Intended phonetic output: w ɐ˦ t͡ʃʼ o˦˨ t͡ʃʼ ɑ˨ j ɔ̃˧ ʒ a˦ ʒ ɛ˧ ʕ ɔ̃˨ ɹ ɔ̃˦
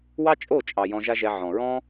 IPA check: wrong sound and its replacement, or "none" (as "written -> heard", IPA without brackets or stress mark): ɐ˦ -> ɑ˦